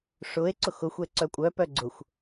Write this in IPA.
ʂ ʊ e̯ ǀ ʊ x ʊ xʷ ɛ ǀ œ kʷʼ œ p œ ɡ͡ǀ ʊ xʷ

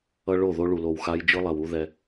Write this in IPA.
ʌ˦ ɭ o˦˨ ð o˦ ɭ u˨ l o˨ w x a˦ j d͡ʒ ɯ˦ lˠ ɛ˨ w u˦ ð ɛ˦

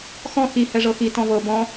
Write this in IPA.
x ɔ̃ x i h ɛ ʐ ɤ x i t ɔ̃ v ɤ b ɔ̃

